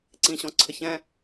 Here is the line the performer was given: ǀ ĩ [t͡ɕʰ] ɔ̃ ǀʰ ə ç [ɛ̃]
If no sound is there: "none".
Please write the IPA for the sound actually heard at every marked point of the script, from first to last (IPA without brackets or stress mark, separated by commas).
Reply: ɕ, ɛ̃